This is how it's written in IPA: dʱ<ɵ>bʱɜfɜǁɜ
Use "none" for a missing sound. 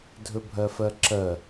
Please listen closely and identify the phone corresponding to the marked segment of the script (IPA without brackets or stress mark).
ɵ